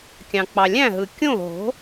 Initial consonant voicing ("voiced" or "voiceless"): voiceless